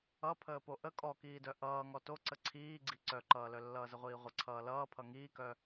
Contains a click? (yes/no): yes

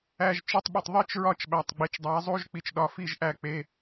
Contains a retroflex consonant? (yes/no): no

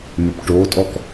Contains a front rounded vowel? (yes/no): yes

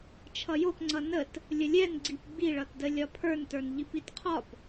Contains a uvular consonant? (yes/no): yes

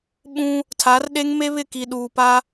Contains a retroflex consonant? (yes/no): no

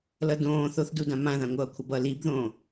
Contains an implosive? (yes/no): no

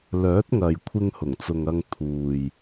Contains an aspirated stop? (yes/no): yes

